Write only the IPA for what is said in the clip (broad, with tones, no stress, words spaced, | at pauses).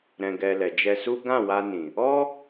ɾɛ̃˨ɡɛ˨ lɛ˨d͡ʒɛ˧su˦ ɡã˦˨wa˧nĩ˨ | ɔ˦